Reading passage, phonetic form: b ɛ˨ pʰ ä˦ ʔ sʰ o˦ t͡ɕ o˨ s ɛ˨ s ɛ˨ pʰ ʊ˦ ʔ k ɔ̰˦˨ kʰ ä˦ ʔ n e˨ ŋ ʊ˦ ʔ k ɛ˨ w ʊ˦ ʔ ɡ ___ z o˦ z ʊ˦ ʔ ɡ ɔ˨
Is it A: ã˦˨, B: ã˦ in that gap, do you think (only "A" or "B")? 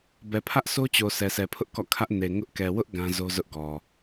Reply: B